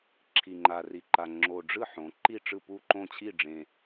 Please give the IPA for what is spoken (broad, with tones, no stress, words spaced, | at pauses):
ǁʰi˨˩ŋ͡ǃa˨˩ri˨˩ǃa˨˩ ŋ͡ǁo˨˩ɖ͡ʐɯ˥˨ ħõ˩˧ ǃi˥˨ʈ͡ʂɯ˥˨pu˥˨ǃõ˥˨ t͡ɕʰi˥˨ɖ͡ʐẽ˨˩